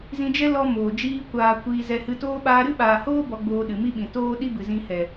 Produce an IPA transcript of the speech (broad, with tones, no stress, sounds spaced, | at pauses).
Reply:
z ĩ˧ d͡ʒ ɛ˦ l ɔ˧ m oː˨ d͡ʒ iː˦ kʷ aː˧ kʷ iː˧ z ɛ˧ h ɨ˧ t oː˦ ɓ aː˧ ɾ ɨ˦ ɓ aː˨ h oː˦ b ɔ˧ ɡ͡b oː˧ ɗ ɨ˨ m i˦ ɓ ĩ˨ t oː˦ ɗ i˦ b ɨ˨ z ĩ˧ h ɛ˨